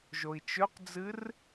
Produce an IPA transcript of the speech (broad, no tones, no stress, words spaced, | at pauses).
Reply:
ʒoi̯t͡ʃɵqd͡zɨr